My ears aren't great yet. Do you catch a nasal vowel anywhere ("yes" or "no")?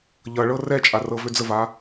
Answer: no